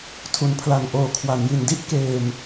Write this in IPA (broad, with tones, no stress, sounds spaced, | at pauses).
tʰ u˩˦ n pʰ l a˨˩ n ʔ oː˨˩ kʰ w a˩˦ n j i˨˩ n d i˥˩ ʔ k eː˧ m